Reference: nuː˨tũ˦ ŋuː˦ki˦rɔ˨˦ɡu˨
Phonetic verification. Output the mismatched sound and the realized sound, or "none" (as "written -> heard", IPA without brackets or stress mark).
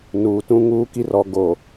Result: u˨ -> o˨